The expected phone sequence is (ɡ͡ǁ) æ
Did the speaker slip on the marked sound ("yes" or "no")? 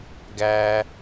yes